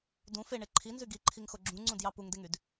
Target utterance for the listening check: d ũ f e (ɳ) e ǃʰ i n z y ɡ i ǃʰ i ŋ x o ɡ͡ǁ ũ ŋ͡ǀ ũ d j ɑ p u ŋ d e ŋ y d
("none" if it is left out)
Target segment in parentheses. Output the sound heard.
ɳ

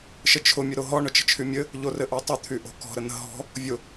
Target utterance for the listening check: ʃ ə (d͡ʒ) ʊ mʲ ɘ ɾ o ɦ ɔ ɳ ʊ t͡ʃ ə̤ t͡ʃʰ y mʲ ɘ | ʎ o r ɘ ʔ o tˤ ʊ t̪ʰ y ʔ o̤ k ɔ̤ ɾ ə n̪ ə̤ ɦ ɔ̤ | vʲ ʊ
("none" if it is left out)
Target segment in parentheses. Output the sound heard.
t͡ʃʰ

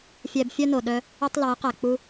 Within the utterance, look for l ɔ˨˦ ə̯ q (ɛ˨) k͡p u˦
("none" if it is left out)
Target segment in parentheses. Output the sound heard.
æ˨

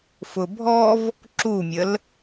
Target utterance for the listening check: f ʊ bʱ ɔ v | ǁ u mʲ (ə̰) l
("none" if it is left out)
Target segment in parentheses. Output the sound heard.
ə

